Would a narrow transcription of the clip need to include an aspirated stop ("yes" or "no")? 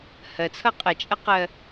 yes